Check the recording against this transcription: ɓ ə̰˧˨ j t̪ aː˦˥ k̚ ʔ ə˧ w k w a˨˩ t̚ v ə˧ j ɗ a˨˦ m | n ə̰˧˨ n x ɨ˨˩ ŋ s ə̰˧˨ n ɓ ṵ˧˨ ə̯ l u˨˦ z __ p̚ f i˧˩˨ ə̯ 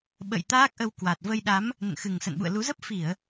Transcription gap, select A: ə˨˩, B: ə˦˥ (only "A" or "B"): B